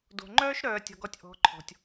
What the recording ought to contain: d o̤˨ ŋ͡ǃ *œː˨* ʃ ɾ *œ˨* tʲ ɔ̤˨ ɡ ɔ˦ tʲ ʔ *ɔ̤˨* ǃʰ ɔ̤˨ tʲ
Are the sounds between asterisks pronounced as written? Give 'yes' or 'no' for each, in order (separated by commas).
no, no, no